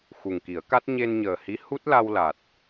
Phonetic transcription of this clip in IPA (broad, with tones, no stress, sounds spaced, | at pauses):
x u˨˩ ŋ k i˨˩˦ ə̯ k a˦˥ t̚ ɲ e˧ n ɲ əː˨˩ h i˧˥ h u˦˥ t̚ l a˧ w l a˨˩ t̚